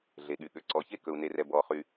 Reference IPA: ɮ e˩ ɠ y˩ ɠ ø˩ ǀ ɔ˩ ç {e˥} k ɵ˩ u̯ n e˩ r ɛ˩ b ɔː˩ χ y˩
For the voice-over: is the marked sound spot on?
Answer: yes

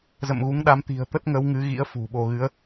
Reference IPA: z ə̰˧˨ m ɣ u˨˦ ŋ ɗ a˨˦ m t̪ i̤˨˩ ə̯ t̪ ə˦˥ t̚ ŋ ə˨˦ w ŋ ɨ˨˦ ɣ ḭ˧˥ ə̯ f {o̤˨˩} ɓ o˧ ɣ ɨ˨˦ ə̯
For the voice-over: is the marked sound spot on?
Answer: no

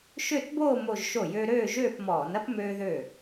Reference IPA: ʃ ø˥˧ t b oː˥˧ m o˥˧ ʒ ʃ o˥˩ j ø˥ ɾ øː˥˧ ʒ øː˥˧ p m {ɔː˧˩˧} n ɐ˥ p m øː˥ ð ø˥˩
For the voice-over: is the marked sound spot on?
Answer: yes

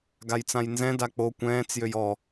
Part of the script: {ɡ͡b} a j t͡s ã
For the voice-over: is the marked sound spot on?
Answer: no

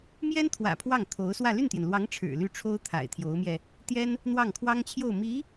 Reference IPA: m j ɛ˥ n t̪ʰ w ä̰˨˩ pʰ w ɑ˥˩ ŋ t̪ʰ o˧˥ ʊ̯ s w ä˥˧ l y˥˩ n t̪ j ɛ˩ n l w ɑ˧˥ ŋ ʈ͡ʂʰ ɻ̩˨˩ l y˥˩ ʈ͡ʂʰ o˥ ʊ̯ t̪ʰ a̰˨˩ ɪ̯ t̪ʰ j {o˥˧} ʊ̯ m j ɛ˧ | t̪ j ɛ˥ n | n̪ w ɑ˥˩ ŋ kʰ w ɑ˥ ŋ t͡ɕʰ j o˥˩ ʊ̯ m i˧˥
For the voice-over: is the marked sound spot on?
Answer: no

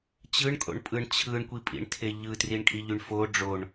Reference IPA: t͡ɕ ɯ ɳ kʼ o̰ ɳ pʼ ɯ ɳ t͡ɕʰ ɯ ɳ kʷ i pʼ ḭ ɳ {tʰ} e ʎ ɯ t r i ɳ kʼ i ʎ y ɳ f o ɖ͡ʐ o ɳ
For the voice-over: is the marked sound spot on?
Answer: yes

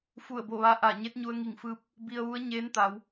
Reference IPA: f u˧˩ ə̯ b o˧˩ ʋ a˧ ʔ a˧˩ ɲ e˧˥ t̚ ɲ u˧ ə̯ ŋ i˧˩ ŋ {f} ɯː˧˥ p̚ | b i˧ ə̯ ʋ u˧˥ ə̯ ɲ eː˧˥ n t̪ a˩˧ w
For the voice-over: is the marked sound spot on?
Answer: yes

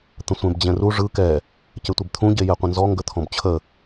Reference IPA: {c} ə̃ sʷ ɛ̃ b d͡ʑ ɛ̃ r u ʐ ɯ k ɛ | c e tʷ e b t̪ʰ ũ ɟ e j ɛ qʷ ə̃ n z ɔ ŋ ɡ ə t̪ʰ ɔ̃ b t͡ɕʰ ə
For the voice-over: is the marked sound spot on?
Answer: no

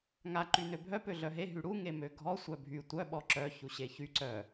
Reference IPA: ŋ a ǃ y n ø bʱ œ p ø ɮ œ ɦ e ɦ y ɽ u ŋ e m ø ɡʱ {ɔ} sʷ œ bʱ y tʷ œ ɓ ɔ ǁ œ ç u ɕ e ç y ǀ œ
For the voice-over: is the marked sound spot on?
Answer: yes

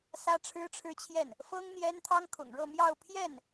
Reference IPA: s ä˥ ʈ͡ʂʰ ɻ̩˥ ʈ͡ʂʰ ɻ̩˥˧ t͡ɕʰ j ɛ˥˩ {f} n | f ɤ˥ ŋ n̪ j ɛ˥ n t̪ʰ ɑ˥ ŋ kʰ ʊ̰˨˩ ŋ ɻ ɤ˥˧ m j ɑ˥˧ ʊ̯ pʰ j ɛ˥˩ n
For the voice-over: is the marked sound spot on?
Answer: no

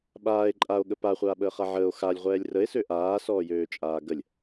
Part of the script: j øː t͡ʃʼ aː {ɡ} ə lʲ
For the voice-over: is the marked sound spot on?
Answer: yes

